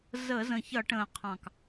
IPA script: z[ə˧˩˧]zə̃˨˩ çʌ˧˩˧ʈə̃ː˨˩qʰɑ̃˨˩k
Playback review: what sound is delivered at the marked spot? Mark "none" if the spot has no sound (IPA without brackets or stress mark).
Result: ə˧˩˧